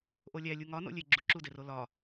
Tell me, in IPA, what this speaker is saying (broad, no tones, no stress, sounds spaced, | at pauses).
ʔ o lʲ æ lʲ u ŋ ɒ n o̰ lʲ e ɡ͡ǁ u ǁ u d e r o l ɒ